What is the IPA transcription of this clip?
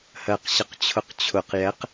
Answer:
h ɜ q ɕ ə q t͡ɕʰ ʊ q t͡ɕʰ ʊ q j ɛ q

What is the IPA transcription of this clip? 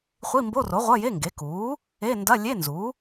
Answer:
χʷ i˧˥˧ m b o˧˥˧ r o˩˥ ʁʷ ɐ˧˥˧ j e˧˥˧ ŋ ɡ e˩˥ k uː˩˥ | e˧˥˧ n d ɐ˧˥˧ lʲ e˧˥˧ n z u˩˥

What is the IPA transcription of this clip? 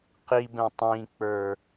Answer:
q i b ɛ̃ tˤ ĩ k͡p ə˞

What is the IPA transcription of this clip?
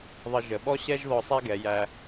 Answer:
ðˤ ə˧ ʒ ə˩˧ ɓ ɔ˥ ɕ ɛ˥ ʒ ð ɔ˧ sˤ æ˥ ɡ ɛ˩˧ j æ˧

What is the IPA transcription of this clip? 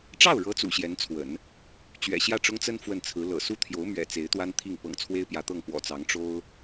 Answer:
ʈ͡ʂ ɑ˥˩ ʊ̯ ɻ ɤ˧˥ t͡s ṵ˨˩ ɕ j ɛ˧˥ n t͡sʰ w ə̰˨˩˦ n | t͡ɕ ɥ ɛ̰˨˩ ɕ j ä˥˩ ʈ͡ʂ ʊ˥ ŋ t͡s ə˥ n f w ə˥˩ n t͡sʰ ɹ̩˧˥ l ɤ̰˨˩ s u˥ t̪ʰ j o˧˥ ʊ̯ m ɥ ɛ̰˨˩ t͡s e˧˥ ɪ̯ t̪ w a˥ n t̪ʰ i˥˩ ŋ p ɤ̰˨˩ ŋ t͡sʰ w e˥ ɪ̯ p j ä˧˥ t̪ ɤ˥˩ ŋ p w ɔ̰˨˩ t͡s ɑ˧˥ ŋ ʈ͡ʂ o˥ ʊ̯

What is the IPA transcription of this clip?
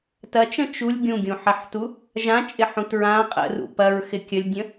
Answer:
t ɐ t͡ʃ ə̃ t͡ʃ u lʲ ɡʲ ũ ɡʲ ũ ħ ɐ ħ t u | ʒ ã t͡ʃʼ ɪ ħ ũ t ɹ ã qʼ ə̰ r ṵ p ɐ ɹ x ɪ kʲ ə lʲ dʲ ə̃

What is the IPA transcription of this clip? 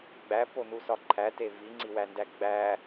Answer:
ɡ͡b æ p o n u s ɒ ǃʰ æ t e v i ŋ͡ǀ i w æ n d æ ɡ͡b æ

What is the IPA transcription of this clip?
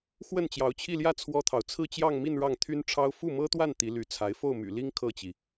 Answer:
x w ə˥˩ n t͡ɕ j ɑ˧˥ ʊ̯ t͡ɕʰ i˥˧ l j ä˥˩ t͡sʰ w ɔ˥ t̪ʰ ɑ˨ ʊ̯ t͡sʰ ɹ̩˥˧ t͡ɕ j ɑ˥˧ ŋ m i˥˧ n ɻ ɑ˥˩ ŋ t̪ʰ y˥ n ʈ͡ʂʰ ɑ˥ ʊ̯ f u˥˩ m ɤ˥ t̪ w a˥˩ n t̪ i˧˥ l y˧˥ t͡sʰ a˧˥ ɪ̯ f o˥˩ ʊ̯ m y̰˨˩ l i˥ ŋ kʰ ɤ˥˩ t͡ɕ i˩

